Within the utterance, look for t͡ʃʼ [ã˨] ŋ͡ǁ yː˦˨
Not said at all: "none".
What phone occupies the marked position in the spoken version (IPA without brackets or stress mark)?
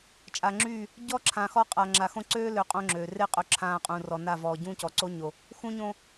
a˨